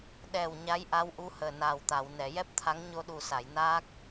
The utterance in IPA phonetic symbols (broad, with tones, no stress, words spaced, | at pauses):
ɗɛ˨˩w ɲa˧˥jʔa˧˥wʔu˧˥ həː˨˩naː˨˩wt̪a˨˩˨w nɛ˨˩˨jɛ˦˥p̚t̪ʰa˧˥ŋ ɲo˧ɗu˨˩sa˨˩˨jnaː˦˥k̚